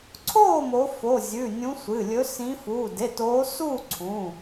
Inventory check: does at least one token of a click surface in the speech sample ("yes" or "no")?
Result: yes